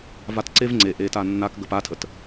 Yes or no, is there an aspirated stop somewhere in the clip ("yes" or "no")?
yes